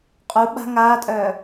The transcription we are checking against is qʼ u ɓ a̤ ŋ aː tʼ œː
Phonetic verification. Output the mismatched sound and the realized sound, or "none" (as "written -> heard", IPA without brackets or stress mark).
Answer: none